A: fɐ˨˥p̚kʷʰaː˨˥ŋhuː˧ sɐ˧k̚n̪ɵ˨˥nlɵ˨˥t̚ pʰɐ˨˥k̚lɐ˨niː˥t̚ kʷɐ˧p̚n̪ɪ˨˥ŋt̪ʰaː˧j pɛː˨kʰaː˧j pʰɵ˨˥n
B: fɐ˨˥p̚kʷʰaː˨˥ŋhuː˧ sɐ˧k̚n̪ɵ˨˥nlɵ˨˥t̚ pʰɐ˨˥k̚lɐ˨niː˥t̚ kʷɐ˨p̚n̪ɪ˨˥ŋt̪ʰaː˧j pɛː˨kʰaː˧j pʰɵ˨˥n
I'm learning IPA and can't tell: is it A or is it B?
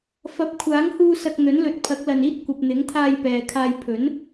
B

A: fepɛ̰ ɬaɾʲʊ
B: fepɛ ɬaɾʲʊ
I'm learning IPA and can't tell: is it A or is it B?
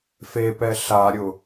B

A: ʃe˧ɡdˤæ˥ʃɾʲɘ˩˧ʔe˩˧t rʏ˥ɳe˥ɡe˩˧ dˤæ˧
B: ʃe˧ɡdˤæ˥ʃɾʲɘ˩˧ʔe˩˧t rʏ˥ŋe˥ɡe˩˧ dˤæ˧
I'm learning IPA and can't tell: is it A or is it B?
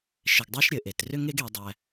B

